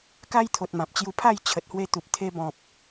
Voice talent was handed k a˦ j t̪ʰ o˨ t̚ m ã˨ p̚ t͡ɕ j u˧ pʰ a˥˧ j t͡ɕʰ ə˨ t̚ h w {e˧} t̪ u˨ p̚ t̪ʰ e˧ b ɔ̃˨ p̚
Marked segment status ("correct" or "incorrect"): correct